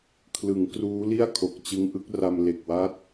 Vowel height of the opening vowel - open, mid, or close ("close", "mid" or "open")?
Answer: close